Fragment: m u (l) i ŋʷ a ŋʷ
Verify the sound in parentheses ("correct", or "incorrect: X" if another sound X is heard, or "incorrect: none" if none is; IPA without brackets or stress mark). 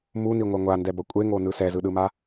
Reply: incorrect: n